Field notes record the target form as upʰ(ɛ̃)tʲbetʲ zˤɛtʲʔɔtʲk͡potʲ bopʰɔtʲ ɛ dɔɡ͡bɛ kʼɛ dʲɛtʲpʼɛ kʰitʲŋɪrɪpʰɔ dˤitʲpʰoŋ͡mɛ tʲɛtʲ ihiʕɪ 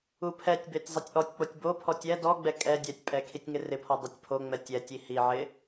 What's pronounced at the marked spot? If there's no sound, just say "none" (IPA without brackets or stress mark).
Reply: ɛ